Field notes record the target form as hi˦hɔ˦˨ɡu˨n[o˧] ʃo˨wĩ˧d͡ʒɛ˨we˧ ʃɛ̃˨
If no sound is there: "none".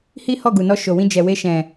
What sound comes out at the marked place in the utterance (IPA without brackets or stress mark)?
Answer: ɔ˧